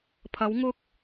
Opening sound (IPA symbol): pʰ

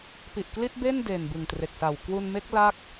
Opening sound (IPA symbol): p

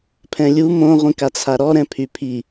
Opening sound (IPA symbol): pʰ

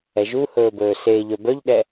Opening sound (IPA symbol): ɛ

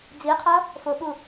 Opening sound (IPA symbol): d͡z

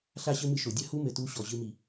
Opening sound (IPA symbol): ɬ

